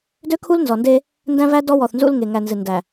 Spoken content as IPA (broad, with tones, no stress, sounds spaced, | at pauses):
d ø˦ kʰ u˦ l n z ɔ˨ n d e˦ | n d æ̃˦ v æ˦ d ɔ˦ w ɔ˨ θ n z ṵ˦ l ŋ e˨ ŋ æ˨ n z ɨ˨ n d æ˨